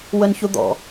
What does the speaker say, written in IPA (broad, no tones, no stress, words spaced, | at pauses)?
wənçud̪ɔ̰